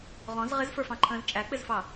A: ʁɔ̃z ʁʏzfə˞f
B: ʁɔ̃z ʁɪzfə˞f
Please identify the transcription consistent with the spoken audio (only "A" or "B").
B